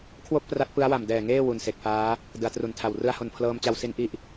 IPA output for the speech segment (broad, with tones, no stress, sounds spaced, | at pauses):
kʰ w o˥˩ k̚ p r a˦˥ t̚ p ɯ˦˥ a̯ w a˨˩ m d ɛː˨˩ ŋ eː˥˩ w u˨˩ n s e˨˩ k̚ f aː˦˥ | d ɯ˩˦ a̯ t r u˨˩ n tʰ a˨˩ w r ɯ˧ a̯ h o˨˩ n pʰ l ɤː˧ m t͡ɕ a˧ w s i˦˥ n ʔ i˦˥ ʔ